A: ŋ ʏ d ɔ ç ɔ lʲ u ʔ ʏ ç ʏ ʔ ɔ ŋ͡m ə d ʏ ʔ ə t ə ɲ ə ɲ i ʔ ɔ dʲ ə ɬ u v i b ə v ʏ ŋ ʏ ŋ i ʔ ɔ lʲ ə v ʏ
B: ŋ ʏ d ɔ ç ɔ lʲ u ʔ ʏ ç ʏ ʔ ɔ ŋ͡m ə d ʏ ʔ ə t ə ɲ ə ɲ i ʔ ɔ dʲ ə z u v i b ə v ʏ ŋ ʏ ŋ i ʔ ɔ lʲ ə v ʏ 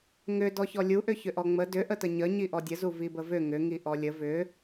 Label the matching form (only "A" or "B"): B